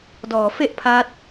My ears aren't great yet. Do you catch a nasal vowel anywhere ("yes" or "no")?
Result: no